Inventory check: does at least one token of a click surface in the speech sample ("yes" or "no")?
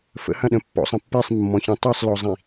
no